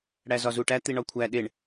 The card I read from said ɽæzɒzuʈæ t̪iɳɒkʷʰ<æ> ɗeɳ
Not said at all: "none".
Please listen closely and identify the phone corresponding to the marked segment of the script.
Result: æ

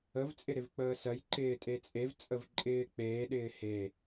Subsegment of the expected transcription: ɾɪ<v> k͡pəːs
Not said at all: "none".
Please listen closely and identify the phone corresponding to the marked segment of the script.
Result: v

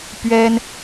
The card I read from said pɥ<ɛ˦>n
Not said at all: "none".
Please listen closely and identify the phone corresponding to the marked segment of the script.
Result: ɛ˦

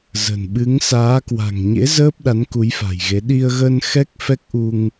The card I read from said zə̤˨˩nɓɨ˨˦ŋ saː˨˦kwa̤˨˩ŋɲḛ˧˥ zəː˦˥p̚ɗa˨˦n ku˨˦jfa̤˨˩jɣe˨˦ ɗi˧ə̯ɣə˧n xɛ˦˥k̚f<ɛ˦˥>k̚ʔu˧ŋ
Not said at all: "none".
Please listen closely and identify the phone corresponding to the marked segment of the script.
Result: ɛ˦˥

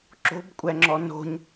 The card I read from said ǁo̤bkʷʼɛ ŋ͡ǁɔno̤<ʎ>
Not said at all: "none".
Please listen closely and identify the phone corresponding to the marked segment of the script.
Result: ɲ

